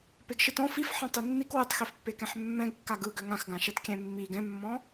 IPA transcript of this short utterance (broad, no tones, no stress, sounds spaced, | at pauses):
p e ɡ ʃ ɨ t ɔ̃ f i f ħ ɛ̃ tˤ i nː i k w ɯ tˤ x i f pː e k ɛ̃ ħ mː ɛ̃ ɡ kː a ɡ ɯ ɡ ø ŋ ã x ɡ ã ʃ ɛ t kʲ ɛ̃ mː i ɡ ɛ̃ mː ɔ̃